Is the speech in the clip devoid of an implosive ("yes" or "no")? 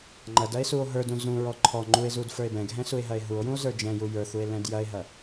yes